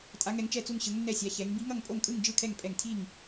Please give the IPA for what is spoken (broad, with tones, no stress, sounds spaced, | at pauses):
tʼ a˧˥ ŋ ɛ˧˥ ŋ t͡ʃ ɛ˥˧ t͡s u˥˧ ŋ ɕ ɯ˧˥ ŋ nː ɛ˥˧ sʲ a˧˥ ç ɛ˧˥ ŋ b i˧˥ ŋ ʌ˥˧ ŋ pʼ o˥˧ ŋ kʼ ɯ˥˧ ŋ d͡ʒ ɯ˥˧ kʰ ɛ˥˧ ŋ pʼ ɛ˥˧ ŋ tʰ i˥˧ ŋ